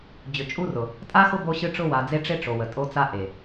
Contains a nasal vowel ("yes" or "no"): no